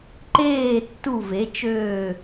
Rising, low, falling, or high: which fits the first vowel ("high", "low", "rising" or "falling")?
falling